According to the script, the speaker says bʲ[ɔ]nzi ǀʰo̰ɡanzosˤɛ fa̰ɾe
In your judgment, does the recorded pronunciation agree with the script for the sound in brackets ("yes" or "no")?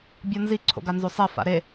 yes